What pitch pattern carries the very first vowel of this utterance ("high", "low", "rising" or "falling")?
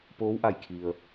rising